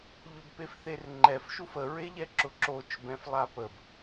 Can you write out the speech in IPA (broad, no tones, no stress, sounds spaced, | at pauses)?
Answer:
ʎ ʊ b p e f θ e r ŋ͡ǃ ɛ f ʃ u f ə ɹ e ʎ ɛ ǁ ʊ ǁ o t͡ʃ b ɛ̃ f lˠ a p ə b